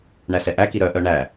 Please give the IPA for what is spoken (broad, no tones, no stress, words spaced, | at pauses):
ɳæsɛʔæki ɾœʔœ ɳæ